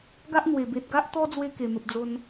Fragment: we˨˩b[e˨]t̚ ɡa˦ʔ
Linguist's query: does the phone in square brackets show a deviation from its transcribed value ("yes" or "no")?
no